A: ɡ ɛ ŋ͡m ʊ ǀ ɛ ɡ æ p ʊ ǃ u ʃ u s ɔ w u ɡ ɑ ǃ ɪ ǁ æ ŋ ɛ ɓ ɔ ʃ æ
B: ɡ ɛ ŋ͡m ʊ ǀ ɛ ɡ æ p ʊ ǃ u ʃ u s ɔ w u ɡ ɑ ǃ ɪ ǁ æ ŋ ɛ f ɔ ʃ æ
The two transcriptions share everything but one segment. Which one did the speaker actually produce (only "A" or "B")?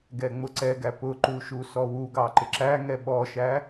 A